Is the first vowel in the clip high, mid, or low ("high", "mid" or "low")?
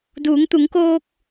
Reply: high